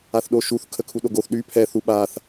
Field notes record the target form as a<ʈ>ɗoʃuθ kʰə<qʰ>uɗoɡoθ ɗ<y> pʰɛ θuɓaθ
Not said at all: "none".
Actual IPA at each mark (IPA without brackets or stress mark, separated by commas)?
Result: θ, kʰ, y